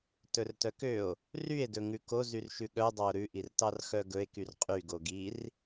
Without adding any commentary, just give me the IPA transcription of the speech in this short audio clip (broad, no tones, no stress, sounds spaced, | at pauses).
t ɵ r t œ k ø o̯ | r y e̯ d ɵ ŋ ʉ k o z y r ʃ ʉ ɠ œ dˤ ɑ o̯ ɾ ʉ ʔ i r t ɑ r x œ ɡ ɵ e̯ k y r qʼ y ɡ o ɡ i r